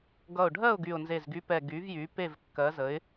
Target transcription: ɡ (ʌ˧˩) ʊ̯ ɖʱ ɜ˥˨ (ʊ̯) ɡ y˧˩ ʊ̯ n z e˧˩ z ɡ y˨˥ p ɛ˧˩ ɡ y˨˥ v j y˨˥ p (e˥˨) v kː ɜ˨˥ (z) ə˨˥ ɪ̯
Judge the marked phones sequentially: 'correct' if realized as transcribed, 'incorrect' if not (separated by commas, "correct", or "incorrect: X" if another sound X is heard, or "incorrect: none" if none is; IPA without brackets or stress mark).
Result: correct, correct, correct, correct